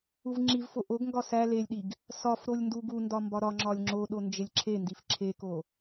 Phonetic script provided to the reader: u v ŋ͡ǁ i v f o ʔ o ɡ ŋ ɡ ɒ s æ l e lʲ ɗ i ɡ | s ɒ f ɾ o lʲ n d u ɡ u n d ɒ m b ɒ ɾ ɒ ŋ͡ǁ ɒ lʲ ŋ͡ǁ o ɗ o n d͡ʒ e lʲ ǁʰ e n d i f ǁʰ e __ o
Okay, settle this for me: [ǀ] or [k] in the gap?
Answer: k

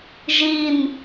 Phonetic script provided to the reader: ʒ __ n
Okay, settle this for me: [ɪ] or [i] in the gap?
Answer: i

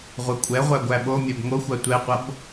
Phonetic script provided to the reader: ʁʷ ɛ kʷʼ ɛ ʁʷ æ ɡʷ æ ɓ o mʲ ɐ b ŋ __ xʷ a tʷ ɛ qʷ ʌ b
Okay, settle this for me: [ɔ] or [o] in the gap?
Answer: o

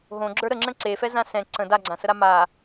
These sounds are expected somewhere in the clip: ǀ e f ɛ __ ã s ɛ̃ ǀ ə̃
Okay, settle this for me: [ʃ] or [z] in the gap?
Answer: z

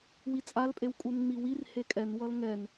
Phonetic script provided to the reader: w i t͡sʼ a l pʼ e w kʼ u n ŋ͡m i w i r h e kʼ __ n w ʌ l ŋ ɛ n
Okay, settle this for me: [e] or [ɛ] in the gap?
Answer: ɛ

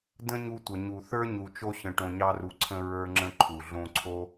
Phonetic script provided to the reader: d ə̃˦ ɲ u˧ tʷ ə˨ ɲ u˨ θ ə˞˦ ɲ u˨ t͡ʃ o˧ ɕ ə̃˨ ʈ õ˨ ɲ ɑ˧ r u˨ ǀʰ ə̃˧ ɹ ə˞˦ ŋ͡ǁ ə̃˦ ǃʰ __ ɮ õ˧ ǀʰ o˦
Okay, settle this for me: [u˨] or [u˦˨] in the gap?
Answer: u˨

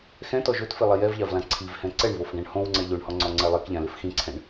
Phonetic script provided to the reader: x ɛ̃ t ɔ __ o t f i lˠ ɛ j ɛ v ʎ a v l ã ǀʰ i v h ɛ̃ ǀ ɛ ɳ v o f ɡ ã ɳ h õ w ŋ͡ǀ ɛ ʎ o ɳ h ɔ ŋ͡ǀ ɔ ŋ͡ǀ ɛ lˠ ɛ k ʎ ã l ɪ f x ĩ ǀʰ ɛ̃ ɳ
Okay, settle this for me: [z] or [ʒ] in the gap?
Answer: ʒ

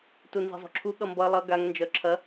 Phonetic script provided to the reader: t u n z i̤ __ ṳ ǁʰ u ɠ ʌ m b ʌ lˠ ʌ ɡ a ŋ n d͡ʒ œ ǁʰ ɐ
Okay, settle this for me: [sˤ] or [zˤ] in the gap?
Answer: zˤ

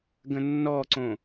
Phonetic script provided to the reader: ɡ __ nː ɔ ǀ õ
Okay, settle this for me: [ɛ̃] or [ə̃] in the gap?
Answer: ə̃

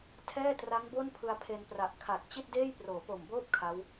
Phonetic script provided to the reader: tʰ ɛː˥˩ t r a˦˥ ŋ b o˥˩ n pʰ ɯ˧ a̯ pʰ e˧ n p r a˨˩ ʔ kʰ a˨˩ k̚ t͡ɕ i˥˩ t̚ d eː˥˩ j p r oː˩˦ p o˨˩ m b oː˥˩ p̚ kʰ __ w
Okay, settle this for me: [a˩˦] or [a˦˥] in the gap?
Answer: a˦˥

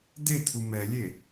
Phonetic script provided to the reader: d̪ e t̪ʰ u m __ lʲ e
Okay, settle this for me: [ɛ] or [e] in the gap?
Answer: ɛ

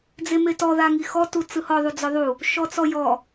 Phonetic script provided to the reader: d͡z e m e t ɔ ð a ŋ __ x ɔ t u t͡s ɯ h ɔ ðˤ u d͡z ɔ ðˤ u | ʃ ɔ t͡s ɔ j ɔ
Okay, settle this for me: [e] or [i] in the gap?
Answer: i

